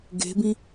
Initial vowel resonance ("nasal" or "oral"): oral